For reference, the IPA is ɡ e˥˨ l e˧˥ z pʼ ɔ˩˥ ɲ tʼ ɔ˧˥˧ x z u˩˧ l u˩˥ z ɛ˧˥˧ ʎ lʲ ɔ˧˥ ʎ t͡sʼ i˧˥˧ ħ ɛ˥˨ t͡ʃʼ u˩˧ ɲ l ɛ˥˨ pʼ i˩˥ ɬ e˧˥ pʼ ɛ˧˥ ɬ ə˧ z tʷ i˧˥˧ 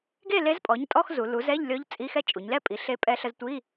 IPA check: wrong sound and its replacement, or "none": ħ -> x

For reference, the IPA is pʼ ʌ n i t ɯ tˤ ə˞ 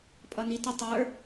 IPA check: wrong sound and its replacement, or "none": ɯ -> ə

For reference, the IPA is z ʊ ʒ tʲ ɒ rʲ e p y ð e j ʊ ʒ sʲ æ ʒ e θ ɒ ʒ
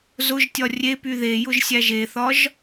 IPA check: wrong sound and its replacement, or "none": none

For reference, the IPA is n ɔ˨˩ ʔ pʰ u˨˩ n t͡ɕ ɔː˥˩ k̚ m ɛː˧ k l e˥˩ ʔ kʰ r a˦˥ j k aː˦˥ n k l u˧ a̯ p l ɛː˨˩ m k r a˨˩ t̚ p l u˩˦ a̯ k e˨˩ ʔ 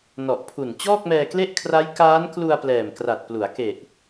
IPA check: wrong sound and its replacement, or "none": none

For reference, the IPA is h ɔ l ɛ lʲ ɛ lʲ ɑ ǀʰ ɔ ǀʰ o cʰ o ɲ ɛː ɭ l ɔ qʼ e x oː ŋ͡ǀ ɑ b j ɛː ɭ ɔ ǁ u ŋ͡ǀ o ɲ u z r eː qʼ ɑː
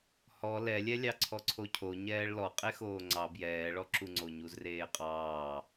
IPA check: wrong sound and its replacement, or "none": none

